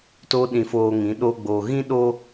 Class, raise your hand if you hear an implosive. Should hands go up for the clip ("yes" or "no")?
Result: yes